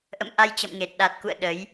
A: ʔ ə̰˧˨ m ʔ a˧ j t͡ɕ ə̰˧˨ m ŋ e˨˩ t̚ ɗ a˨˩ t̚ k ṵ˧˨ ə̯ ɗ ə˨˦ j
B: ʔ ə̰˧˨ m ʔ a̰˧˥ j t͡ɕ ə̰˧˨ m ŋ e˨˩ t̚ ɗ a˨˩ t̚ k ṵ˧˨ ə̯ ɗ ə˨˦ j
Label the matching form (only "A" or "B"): A